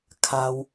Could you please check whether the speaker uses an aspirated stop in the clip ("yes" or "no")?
yes